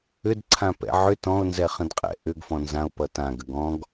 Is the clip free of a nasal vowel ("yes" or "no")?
no